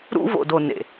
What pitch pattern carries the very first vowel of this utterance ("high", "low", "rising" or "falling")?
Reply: high